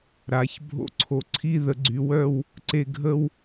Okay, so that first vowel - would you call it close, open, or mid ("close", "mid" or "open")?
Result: open